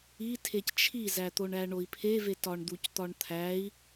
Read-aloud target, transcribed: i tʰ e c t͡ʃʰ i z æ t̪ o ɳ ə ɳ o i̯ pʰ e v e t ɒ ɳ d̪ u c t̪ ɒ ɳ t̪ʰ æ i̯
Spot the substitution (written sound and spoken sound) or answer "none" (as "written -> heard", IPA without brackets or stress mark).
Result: ə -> æ